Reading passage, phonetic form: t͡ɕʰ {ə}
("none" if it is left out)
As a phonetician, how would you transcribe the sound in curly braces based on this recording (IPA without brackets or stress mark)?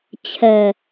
ɛ